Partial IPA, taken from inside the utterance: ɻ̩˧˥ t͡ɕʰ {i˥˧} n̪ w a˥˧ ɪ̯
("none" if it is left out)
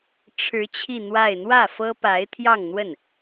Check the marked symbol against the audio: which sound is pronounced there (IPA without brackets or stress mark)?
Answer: i˥˧